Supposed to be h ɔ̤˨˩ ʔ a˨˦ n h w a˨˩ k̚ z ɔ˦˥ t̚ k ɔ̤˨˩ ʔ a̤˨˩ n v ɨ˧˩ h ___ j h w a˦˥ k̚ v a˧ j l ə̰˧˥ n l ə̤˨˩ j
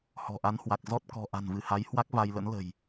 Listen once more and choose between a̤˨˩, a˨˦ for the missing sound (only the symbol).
a˨˦